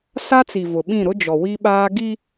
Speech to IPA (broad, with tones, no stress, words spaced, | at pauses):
sa˦t͡si˨ vʊ˨ɓĩ˦˨ ɾʊ˦d͡ʒɔ˨wi˦ɓaː˦ ɡi˦